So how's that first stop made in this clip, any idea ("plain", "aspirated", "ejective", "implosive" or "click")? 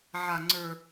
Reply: click